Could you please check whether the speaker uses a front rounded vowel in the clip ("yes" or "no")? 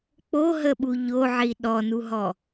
no